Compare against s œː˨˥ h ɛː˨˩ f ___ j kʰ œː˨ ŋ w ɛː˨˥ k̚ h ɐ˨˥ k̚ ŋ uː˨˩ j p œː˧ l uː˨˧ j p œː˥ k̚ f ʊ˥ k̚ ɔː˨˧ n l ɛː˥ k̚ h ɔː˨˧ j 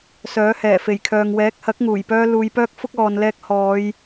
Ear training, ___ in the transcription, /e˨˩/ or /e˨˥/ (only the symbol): e˨˩